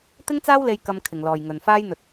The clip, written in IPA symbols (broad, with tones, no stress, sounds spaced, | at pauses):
t̪ ɪ˥ ŋ t͡s aː˥ w l e˧ j k ɐ˧ m kʰ ɪ˨ ŋ l ɔː˨ j ŋ ɵ˨ n f aː˥ j n̪ ɵ˧ t̚